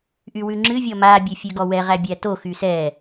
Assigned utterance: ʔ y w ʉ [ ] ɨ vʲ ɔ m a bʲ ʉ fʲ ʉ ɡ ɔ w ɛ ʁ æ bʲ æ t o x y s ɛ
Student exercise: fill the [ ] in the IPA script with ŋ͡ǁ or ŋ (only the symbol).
ŋ͡ǁ